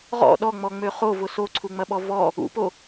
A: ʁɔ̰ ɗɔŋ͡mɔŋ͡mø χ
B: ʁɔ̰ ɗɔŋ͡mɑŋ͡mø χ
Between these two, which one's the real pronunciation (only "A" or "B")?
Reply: A